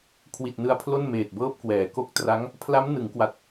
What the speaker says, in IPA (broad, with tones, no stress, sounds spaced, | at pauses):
kʰ w i˨˩ t̚ n ɯ˧ a̯ pʰ l o˥˩ n m eː˨˩ t̚ b ɤː˥˩ p̚ k w ɛː˩˦ k o˦˥ k̚ t r a˦˥ ŋ | pʰ l a˦˥ m n ɯ˩˦ ŋ k w a˨˩ t̚